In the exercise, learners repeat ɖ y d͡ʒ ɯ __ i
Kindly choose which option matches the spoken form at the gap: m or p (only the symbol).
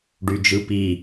p